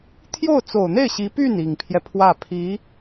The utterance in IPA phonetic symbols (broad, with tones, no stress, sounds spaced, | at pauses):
t̪ʰ j o˥˩ ʊ̯ t͡s o˨˩ ʊ̯ n̪ e˥˩ ɪ̯ ɕ i˧˥ p y˥˩ n i˨˩ ŋ pʰ j ɛ˦ pʰ w ä˥˩ pʰ i˧˥